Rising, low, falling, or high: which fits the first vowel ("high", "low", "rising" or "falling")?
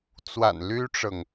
low